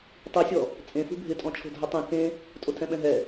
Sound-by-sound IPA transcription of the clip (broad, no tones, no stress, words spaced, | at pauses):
tˤisʲɔ | t͡sʼẽfṳ bʱɪtʼɔ̃t͡ʃʰo̤ dʱʊtˤĩ kẽ | tʼotʰɛ̃ɓɛ̃ɦɛ